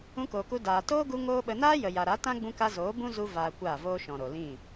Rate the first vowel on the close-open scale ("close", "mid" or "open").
close